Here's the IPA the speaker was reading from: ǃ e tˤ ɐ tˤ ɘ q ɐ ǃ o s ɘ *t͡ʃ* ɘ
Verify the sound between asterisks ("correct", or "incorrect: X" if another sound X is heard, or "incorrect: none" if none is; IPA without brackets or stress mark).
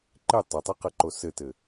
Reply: incorrect: t